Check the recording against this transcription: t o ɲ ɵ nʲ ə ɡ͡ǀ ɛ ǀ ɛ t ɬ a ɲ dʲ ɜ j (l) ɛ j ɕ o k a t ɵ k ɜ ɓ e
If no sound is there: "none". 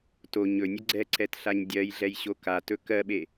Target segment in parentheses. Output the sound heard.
ɮ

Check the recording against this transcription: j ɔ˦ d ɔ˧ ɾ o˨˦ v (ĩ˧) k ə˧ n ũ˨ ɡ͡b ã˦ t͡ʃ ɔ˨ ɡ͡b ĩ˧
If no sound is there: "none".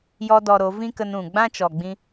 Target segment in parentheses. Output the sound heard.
ĩ˦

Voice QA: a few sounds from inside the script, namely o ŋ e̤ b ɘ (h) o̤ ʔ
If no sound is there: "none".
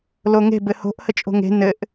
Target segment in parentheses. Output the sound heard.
h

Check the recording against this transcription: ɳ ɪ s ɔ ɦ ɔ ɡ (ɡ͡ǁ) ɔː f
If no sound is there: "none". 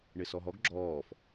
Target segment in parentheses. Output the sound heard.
ɡ͡ǁ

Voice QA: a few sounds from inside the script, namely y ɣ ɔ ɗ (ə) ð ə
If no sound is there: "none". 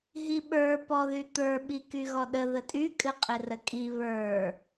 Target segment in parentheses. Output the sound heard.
ə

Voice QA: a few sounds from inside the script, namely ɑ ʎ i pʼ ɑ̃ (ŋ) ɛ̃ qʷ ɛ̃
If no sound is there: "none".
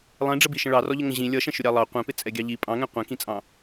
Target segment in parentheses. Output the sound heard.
ŋ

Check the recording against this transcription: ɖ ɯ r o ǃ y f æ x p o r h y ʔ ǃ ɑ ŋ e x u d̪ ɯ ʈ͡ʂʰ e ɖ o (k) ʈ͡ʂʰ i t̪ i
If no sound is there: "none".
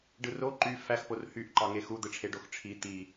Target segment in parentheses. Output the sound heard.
x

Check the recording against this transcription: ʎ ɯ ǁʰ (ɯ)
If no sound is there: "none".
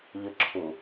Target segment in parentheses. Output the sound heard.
u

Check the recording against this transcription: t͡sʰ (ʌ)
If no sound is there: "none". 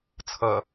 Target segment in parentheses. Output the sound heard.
ʌ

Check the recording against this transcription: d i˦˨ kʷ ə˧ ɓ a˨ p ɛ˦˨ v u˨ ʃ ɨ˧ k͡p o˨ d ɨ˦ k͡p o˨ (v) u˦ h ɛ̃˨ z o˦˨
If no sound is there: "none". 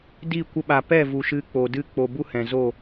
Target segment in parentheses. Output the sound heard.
b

